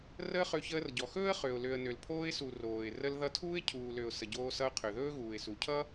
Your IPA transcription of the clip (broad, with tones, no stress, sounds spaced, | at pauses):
r əː˦ χ ø˧ ç əː˧ r ɟ ɔ˨ x ɵː˦ ə̯ χ ø˨ ʊ̯ l ø˨ ə̯ n ø˨ l pʰ oː˧ ɪ̯ s u˨ r oː˨ ɪ̯ r ə˧ l ð ʌ˧ tʰ uː˦ ɪ̯ cʰ uː˨ l ø˨ ʊ̯ s ə˨ ɟ oː˧ s ʌ˧ ʊ̯ qʰ ø˨ ð ɵː˦ ɣ uː˨ ɪ̯ s u˨ cʰ ʌ˦